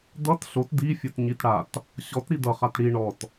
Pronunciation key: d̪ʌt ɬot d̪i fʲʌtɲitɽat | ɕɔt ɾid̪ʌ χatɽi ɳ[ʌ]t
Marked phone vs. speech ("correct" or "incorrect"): incorrect